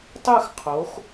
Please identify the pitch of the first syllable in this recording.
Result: falling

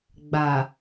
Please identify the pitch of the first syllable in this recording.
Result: low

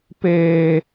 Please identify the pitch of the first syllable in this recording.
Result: high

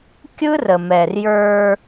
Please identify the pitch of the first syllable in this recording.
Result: high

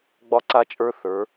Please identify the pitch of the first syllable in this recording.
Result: high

